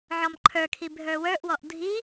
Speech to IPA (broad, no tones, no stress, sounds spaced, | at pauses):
ʕ ɔ m ǃʰ ə˞ kʰ i bʱ ə˞ w ə˞ ʔ w ɔ ʔ dʱ i